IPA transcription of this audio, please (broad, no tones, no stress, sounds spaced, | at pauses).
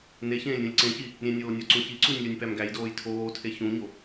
n e ç ẽː lʲ ɾʲ ũ lʲ ǀ ẽ ç i | ɾʲ ẽ nʲ oː nʲ ɒ ǀ ũ ç i ǀ u nʲ lʲ o nʲ p æ m ɡ æ j d oː j tʰ oː tʰ e ç ũ ɲ o